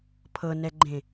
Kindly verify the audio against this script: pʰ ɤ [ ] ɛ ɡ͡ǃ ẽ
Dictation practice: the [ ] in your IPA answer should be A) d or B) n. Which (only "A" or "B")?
B